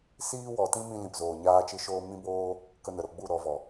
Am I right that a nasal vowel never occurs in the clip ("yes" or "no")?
no